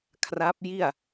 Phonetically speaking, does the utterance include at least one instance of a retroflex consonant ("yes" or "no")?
no